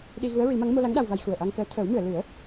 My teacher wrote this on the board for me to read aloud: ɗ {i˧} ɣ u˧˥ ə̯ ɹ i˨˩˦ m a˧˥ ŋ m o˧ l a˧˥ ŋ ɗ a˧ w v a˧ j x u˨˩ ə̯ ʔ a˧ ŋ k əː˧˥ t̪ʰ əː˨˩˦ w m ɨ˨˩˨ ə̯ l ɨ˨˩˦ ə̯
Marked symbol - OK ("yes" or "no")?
yes